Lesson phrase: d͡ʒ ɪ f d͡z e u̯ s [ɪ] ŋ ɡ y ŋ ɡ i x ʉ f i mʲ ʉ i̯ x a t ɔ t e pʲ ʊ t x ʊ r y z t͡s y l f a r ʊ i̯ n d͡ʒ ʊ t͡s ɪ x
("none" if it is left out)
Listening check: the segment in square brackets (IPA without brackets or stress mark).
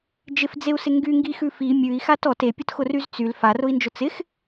ɪ